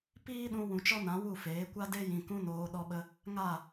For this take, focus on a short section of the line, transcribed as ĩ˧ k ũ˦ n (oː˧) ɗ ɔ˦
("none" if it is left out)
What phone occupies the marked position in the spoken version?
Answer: oː˧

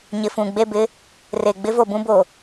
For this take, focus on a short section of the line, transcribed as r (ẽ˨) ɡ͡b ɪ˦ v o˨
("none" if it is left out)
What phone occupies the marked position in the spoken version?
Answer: e˨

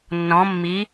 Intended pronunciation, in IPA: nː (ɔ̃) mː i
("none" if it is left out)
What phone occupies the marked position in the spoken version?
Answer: ɔ̃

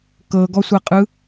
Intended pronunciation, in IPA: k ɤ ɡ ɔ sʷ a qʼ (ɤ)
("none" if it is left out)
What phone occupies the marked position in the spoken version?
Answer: ɯ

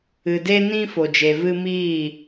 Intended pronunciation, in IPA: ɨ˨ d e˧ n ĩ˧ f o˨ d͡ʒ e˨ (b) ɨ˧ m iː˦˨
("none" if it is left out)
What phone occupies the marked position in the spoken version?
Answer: v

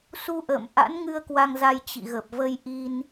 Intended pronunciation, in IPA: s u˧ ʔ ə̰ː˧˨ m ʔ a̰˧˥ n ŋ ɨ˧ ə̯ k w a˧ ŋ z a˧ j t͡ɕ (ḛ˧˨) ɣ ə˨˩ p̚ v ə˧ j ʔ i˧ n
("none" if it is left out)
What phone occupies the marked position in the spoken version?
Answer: ḭ˧˨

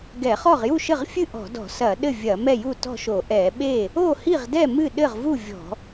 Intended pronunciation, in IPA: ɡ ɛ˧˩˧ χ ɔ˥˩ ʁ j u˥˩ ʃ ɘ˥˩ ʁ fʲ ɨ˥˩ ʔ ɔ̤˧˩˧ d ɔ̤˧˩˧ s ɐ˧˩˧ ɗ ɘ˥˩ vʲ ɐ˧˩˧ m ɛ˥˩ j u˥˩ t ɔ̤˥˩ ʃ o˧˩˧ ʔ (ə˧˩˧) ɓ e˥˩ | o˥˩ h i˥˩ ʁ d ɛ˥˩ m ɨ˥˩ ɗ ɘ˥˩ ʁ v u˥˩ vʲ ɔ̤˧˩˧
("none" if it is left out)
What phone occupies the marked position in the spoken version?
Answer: ɛ˧˩˧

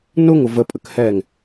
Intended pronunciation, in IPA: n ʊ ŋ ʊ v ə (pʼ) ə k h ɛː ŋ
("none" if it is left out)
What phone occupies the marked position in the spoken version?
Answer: pʼ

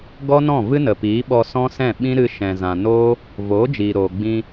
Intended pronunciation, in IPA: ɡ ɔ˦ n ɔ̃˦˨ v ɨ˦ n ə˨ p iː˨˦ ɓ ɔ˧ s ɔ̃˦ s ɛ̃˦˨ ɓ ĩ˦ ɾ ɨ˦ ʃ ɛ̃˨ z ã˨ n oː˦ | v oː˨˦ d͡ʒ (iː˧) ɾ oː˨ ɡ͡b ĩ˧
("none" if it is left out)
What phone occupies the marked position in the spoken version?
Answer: iː˨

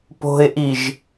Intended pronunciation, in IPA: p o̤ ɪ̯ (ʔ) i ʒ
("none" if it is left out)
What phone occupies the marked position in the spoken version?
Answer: ʔ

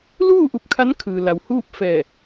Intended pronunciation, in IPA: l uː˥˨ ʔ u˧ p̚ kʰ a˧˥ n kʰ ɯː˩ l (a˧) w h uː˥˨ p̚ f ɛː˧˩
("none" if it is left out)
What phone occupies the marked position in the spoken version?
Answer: a˩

